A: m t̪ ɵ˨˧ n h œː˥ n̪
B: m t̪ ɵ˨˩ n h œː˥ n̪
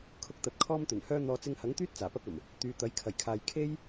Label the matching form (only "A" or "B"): B